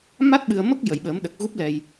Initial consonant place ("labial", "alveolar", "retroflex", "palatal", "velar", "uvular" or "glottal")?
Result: labial